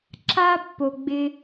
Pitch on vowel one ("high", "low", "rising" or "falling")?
high